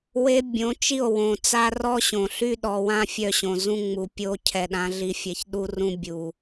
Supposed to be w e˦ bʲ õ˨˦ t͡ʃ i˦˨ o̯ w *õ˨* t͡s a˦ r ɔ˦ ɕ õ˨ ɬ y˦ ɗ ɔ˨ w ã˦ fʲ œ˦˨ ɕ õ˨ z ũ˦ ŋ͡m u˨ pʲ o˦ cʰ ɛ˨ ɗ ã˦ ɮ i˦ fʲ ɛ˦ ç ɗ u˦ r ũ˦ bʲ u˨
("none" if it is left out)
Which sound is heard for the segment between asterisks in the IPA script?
õ˨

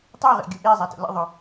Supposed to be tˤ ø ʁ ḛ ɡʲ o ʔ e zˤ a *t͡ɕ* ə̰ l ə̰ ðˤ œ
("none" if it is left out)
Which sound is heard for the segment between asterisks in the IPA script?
t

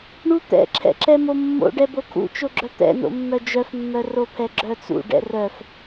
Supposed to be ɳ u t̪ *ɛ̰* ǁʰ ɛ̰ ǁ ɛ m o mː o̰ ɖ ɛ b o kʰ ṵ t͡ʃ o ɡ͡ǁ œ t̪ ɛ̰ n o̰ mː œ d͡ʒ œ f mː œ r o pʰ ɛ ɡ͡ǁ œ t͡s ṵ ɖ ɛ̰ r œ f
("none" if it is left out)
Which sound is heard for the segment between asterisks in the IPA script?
ɛ̰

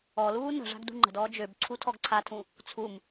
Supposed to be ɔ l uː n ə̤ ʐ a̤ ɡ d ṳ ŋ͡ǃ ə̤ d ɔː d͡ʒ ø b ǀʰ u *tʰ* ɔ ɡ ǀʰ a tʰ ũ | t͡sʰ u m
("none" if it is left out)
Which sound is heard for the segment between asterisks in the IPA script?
tʰ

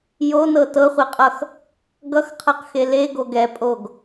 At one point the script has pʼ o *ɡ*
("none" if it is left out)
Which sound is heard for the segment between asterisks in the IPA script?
ɡ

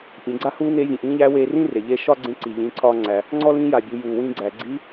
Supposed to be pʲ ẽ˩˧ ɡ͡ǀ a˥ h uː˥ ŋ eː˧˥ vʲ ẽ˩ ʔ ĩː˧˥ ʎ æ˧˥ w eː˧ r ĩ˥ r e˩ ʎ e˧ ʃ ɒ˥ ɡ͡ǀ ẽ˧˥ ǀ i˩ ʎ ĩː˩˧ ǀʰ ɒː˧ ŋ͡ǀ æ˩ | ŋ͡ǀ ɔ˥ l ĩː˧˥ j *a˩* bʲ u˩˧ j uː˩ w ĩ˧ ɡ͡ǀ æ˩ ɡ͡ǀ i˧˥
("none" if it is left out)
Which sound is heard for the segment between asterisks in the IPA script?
a˩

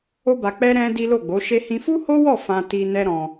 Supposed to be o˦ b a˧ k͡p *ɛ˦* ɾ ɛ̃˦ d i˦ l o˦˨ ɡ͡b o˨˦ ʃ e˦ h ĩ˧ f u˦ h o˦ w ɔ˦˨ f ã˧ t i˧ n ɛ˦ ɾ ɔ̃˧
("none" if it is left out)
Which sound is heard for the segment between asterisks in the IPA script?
ɛ˦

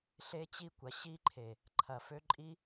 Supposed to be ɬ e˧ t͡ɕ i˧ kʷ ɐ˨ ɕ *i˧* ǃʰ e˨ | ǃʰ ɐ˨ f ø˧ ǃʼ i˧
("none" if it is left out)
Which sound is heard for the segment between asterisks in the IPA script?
i˧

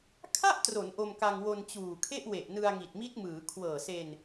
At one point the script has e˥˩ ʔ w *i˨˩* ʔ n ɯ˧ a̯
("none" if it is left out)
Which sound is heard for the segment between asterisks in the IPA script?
e˨˩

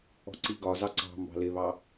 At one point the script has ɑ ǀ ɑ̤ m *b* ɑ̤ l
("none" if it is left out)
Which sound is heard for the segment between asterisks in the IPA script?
b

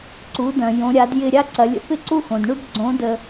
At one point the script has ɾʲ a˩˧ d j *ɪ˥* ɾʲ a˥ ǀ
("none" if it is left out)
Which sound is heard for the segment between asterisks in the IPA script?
ɪ˧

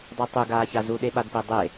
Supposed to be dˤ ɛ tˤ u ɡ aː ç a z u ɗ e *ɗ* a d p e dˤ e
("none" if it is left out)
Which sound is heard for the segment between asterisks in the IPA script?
ɓ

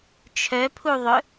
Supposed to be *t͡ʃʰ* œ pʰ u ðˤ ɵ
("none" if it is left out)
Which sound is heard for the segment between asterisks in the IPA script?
t͡ʃʰ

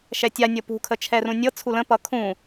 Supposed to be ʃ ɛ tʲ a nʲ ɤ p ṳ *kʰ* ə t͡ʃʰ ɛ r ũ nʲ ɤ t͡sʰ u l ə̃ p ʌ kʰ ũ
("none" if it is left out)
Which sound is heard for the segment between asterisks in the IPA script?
kʰ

